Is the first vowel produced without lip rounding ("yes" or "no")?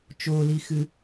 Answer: no